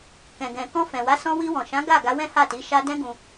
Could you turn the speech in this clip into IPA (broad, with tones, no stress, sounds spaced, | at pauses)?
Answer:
k ɛ̃˨ ɡ ɛ̃˨ k ɔ̃˧ f ɛ̃˨ w a˨˦ s ɔ̃˧ w i˧ w ɔ̃˨ ʃ ã˨˦ ɡ a˦˨ ɡ a˨˦ w ɛ̃˦ h a˦˨ t i˨˦ ʃ a˧ d ɛ̃˦ ɡ ũ˧